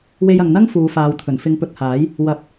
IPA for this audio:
w e˧ j ɐ˨ ŋ n̪ ɐ˥ ŋ f uː˨˧ f aː˨˧ w t̪ʰ ɵ˨˩ n f ɪ˨˧ ŋ p ɵ˨ t̚ h aː˨˥ j | w ɐ˨˥ p̚

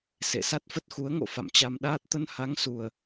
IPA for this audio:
s ḛ˧˨ s a˦˥ t̚ f ə˦˥ t̚ x u˨˦ ə̯ ŋ o̰˧˨ f a̰˧˨ m t͡ɕ a˧ m ɗ aː˦˥ t̚ t̪ ə˧ n h a˨˦ ŋ s u˨˩ ə̯

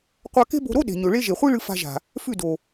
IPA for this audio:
qʷ a˧ k e̤˦ b o̤˧ ɾ o˦ ɗ e̤˨ ɲ ɵ˨ ɭ e˦ ʒ e˨ χʷ i˦ ɭ ɨ˧ f a̤˧ ʒ a̤˨ | f ʉ˦˨ d o˨

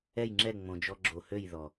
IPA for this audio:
ɛ˦˨ j ŋ͡ǁ ɛ˦˨ ŋ͡m õ˧ d͡ʒ ɔ˦ ɡ͡ǁ o˧ h ø˦˨ j ð ɔ˨

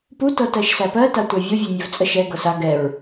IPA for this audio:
p u t ɤ t ɜ ʃ s æ p ɜ t a tʷ æ vʲ ɤ vʲ ɜ nʲ ɜ v t͡sʼ ə ʃ ɛ ɡ ɤ s a ɡ ɛ ɹ

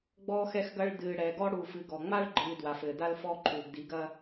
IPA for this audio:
ɡ͡b ɔː˦ x ɛ˦ x ɡ ɐ˦ ɭ d ɨː˨ ɽ ɛ˨ ɡ ɔ˦ ɽ u˨ f ɨ˨ ɡ ɔ˨ ŋ͡m a˦ ɭ ɡ͡ǃ ɨː˨ d w a˨ f ɘː˨ d a˦ l f ɔː˦ ǃʰ uː˨ ɡ d i˨˦ ɡ ɐ˦

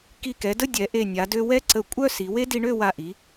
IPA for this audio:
k i˧˩ k ɛ˩˧ d ə˥˧ dʲ ɛ˩˧ ʔ e˧˩ nʲ a˩˧ d ø˧ w ɛ˥ ǀ ə˧˩ kʷʼ œ˥˧ s i˩˧ w e˥ d i˧ ɳ ø˥˧ w a˧˩ ʔ i˩˧

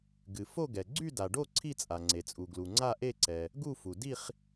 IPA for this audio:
ɡ ɨ˩ f o˥˧ ɡ ɛ˩ ɡ͡ǀ y˥˧ d a˩ ɖ o˥˧ ǀʰ i˥˧ t͡sʼ a˩ ŋ͡ǀ e˩ t͡sʼ u˩ ɡ l u˩ ŋ͡ǀ a˥˧ ʔ e˥˧ ǀ ɛ˩ | ɡ u˥˧ f u˩ d i˥˧ χ

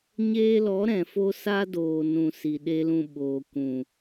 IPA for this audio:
ɲ eː˧ l ɔ˨˦ ɾ ɛ̃˨ f o˧ s a˦ d oː˨ n ũ˨ s i˨ ɗ e˧ l ũ˨ ɓ oː˨ kʷ ũ˨

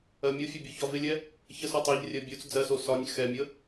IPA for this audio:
ɜ mʲ o fʲ ɒ bʲ u ç ɒ v ɪ lʲ ɛ | ç ə s o tˤ ɜ ʎ rʲ ɜ bʲ u t͡s d͡z ɜ s o s ɒ nʲ x ɛ mʲ ə

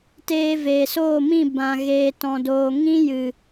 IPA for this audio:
t eː˧ v eː˨ s oː˦˨ m ĩ˦˨ b ã˨ ɣ eː˨ t ɔ̃˨ d oː˨ ŋ ĩ˦ j ɨ˨

